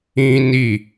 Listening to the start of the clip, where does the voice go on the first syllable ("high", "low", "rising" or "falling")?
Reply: high